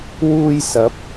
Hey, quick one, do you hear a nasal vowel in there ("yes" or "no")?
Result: no